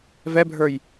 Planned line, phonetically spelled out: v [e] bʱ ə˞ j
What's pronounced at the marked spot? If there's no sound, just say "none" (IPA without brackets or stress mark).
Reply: ɛ